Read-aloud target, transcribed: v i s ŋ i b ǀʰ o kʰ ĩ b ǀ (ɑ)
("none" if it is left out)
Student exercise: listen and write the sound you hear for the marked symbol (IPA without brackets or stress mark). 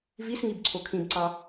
ɑ